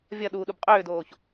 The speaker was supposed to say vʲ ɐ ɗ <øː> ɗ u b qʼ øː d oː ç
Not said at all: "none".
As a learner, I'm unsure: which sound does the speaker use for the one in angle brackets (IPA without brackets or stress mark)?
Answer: uː